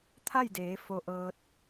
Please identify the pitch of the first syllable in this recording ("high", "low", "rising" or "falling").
falling